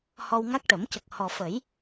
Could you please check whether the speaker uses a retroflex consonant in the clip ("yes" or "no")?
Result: yes